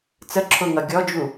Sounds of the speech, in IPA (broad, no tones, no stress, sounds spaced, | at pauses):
t͡s ə ǁʰ ʊ ŋ ʌ ɡʲ ɔ d͡ʒ u